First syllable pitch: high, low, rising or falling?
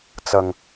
low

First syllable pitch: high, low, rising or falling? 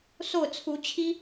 falling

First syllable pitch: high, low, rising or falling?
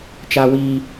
high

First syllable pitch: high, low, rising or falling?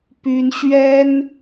high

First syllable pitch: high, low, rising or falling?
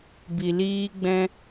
low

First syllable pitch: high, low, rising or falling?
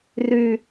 high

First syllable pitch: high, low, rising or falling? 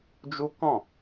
high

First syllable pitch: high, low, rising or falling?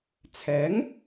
rising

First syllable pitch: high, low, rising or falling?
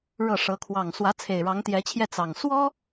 falling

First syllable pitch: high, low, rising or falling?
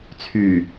low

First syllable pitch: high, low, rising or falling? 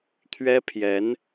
high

